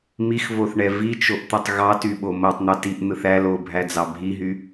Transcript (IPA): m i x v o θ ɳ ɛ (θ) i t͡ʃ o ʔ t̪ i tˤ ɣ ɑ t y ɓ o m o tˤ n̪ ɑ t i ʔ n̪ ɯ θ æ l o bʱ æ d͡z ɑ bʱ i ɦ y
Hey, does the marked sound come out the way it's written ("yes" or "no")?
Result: no